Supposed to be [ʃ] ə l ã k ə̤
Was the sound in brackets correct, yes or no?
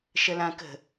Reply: yes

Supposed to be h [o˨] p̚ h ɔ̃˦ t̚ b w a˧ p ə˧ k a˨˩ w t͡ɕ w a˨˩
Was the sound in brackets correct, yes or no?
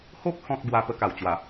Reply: no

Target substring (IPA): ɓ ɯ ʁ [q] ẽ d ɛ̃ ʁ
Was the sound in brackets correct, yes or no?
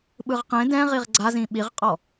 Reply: yes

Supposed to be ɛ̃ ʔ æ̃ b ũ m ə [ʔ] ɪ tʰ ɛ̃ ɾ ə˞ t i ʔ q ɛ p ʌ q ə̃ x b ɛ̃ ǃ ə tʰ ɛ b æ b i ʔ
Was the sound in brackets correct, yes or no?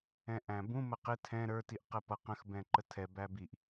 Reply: no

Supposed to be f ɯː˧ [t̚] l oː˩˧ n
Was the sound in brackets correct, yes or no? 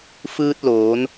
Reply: yes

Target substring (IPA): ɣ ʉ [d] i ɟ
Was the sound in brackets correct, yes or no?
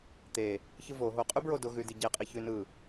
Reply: yes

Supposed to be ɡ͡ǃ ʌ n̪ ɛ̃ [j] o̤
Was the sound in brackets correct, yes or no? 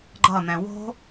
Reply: no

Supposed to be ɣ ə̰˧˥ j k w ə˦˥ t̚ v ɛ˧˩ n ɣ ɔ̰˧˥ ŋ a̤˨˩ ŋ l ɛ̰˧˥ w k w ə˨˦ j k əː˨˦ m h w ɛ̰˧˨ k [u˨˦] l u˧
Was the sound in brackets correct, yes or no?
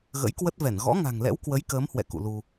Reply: no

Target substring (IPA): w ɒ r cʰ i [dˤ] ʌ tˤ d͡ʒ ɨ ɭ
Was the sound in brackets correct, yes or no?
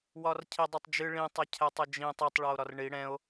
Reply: yes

